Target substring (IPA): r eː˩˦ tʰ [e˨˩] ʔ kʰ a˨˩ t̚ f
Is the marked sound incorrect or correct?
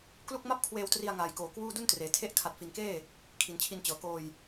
incorrect